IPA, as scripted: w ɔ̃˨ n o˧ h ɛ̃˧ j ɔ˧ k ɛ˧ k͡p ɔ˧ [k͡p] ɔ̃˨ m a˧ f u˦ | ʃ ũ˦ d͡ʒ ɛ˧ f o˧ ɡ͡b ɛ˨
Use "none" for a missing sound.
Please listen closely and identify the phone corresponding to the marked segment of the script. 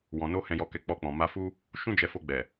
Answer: k͡p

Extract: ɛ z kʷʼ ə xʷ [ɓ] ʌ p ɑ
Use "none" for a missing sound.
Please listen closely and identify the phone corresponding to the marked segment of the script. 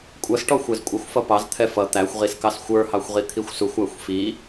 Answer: f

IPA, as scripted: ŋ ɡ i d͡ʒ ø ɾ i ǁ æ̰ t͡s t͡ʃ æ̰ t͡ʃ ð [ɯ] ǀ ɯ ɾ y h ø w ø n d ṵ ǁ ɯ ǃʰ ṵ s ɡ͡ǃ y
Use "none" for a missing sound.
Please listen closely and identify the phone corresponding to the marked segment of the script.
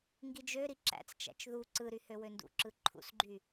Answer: u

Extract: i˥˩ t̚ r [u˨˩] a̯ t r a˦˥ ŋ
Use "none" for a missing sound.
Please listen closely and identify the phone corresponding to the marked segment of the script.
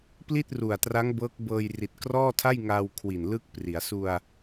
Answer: u˨˩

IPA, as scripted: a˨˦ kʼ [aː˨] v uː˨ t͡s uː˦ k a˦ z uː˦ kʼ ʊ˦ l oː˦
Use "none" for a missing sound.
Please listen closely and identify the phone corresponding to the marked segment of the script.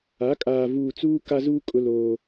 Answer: aː˨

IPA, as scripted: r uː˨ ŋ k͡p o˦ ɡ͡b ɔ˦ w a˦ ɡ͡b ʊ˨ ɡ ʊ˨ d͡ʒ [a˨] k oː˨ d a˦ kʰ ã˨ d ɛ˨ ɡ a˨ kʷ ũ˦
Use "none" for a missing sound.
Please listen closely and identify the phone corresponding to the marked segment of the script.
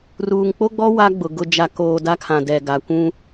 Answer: a˨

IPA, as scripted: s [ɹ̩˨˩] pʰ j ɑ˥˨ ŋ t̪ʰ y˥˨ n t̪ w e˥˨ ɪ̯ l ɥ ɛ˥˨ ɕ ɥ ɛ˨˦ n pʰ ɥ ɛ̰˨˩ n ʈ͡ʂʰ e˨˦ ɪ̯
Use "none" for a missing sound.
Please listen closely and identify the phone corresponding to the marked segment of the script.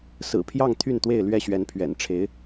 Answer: ɹ̩˨˩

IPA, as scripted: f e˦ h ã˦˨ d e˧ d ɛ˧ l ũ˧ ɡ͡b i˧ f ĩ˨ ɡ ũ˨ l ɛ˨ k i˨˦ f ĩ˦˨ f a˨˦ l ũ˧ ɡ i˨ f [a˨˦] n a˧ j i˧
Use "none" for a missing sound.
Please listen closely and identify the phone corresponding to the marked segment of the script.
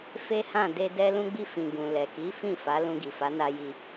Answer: a˨˦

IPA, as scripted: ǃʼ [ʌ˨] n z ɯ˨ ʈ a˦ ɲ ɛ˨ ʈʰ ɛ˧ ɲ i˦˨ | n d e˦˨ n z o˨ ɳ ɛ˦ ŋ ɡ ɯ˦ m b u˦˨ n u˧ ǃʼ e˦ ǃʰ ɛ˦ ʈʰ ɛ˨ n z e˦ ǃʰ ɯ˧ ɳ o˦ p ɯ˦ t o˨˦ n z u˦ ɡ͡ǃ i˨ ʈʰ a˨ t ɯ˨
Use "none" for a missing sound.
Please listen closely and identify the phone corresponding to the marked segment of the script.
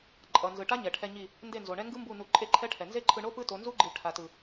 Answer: ʌ˨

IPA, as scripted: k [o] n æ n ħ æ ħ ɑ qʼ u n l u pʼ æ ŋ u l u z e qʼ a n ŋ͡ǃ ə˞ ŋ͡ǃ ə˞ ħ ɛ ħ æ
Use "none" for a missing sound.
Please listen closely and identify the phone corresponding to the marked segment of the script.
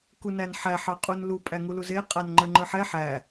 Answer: u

